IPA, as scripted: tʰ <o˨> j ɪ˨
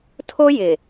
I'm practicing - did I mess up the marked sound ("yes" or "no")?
yes